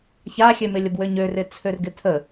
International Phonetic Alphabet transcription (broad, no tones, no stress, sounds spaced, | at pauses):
ç a xʲ ø m ɪ lʲ ə b w ø ɲ ø r ɪ t͡sʰ ø r ɡ ɪ tʰ ə